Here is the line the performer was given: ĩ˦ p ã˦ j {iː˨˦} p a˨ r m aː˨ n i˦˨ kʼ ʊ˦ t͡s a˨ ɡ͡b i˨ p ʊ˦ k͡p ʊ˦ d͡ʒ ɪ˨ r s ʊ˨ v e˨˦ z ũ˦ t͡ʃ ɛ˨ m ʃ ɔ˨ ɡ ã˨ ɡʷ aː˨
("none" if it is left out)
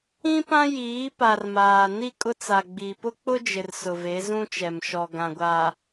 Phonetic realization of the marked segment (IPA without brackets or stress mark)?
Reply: iː˨˦